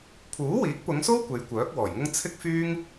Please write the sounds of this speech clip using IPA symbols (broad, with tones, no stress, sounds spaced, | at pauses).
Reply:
pʰ uː˨˥ w iː˨˥ k̚ p ʊ˨˧ ŋ s o˥ w kʷ e˨˧ j kʷ œː˨˥ k̚ w ɔː˨˩ j ŋ ʊ˥ ŋ t͡sʰ ɪ˥ k̚ f yː˥ ŋ